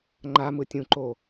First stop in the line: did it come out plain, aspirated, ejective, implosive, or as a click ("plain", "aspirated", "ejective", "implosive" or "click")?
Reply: click